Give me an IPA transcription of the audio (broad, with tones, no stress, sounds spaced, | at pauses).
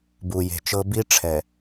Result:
b u˨ j e̤˨ t͡ʃ ɤ˦ b i˦ ʈ͡ʂʰ ɛ˨